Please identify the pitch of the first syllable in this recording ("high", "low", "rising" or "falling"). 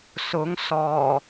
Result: rising